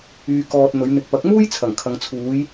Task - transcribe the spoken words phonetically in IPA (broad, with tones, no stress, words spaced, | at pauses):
yː˨ kɔː˨t̚ n̪ɵ˨˧ɥ n̪ɪ˨k̚ pɐ˨˥k̚muː˥j t͡sʰɐ˨˩ŋkʰɐ˨ŋt͡sʰuː˨˧j